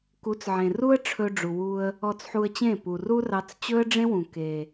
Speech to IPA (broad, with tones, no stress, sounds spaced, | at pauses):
k u˨˦ t͡s ʕ ẽ˨ r u˦ ə̯ ʈ͡ʂʰ ɵ˧ ɖ͡ʐ u˨ w u˧ ə̯ | ɔ˧ t͡s ħ u˧ ə̯ t͡ɕ ẽ˦˨ p u˨ r u˦ r ɑ˧ t͡s t͡ɕ ɵ˦ ə̯ ɖ͡ʐ ẽ˦ w ũ˨ k e˨